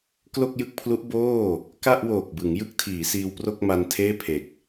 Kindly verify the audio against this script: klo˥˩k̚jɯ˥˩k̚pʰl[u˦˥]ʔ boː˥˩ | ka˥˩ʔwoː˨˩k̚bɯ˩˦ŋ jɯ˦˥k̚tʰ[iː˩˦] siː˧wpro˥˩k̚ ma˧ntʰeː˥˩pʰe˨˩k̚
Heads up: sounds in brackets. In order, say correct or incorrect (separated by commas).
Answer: correct, correct